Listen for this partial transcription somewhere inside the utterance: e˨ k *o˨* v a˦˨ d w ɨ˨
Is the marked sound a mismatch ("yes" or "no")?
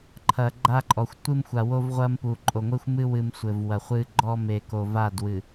no